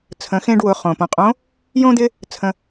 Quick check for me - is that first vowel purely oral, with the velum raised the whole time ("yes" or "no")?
no